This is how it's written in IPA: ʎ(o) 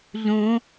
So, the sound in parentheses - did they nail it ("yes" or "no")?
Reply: no